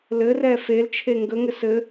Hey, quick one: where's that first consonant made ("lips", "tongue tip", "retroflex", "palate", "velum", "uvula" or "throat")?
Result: tongue tip